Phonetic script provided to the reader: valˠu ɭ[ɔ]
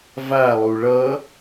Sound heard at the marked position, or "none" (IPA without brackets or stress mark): ʌ